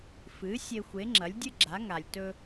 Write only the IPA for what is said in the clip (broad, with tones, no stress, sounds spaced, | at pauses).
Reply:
f ɨ˩˥ sʲ e˧ xʷ e˩˥ ŋ͡ǁ ɐ˩˥ lʲ dʲ ɨ˥ ɡ͡ǁ a˩˥ ŋ a˩ lʲ t ɵ˧